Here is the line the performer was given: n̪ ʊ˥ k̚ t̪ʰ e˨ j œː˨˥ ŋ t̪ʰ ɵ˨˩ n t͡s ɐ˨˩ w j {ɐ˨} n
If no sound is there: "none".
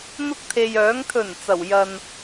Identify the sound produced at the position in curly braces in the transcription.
ɐ˨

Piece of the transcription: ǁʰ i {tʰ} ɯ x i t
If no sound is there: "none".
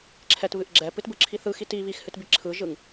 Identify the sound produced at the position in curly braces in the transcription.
θ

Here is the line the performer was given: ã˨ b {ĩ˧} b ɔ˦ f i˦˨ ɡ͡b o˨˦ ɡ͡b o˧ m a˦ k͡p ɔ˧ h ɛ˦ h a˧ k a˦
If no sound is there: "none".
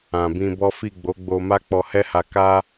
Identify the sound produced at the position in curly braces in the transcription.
ĩ˧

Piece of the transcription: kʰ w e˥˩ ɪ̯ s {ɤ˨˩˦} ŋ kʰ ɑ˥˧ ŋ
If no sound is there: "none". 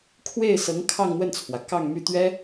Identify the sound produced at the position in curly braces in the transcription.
ɤ˧˥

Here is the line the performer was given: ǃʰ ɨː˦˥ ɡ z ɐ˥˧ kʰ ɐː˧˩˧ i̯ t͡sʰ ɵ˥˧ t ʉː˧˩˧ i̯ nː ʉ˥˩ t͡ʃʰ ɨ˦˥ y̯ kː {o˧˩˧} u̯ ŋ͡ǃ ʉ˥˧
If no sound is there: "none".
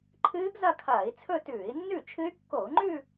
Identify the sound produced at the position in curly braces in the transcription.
o˧˩˧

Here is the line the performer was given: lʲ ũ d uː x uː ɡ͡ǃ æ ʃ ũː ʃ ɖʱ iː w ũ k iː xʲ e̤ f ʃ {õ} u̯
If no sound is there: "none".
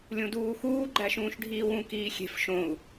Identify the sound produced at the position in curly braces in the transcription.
õ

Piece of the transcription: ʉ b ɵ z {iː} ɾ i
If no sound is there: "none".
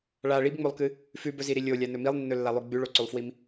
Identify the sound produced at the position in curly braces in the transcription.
i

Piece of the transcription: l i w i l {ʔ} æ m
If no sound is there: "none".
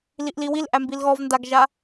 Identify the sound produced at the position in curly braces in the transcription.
ʔ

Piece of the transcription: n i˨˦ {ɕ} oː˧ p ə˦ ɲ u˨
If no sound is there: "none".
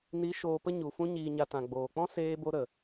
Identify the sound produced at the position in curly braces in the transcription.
ʃ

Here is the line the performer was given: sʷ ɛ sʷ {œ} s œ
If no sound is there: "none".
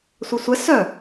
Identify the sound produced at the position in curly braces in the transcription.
ɛ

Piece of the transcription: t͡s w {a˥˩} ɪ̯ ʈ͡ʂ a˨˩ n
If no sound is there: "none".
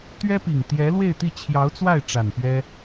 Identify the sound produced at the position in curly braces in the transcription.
a˥˩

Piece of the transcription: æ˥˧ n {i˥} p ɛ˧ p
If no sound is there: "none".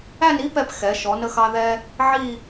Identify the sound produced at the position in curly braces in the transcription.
i˥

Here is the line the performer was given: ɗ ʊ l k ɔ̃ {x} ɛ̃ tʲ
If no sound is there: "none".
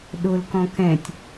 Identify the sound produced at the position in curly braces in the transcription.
k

